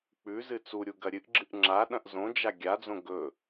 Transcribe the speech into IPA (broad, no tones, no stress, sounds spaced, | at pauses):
k͡p ʉ z ɨ t͡s u ɾʲ u ɡ ɐ ɾʲ ɨ ʔ ɡ͡ǁ ɨ ʔ ŋ͡ǁ a ɗ ɐ̃ ʔ z õ d͡ʒ a ɡʲ a d͡z õ ɡ ɵ